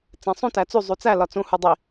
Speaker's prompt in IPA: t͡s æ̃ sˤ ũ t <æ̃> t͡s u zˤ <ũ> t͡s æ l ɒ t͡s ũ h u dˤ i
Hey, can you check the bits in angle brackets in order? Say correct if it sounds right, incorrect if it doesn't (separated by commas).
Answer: incorrect, incorrect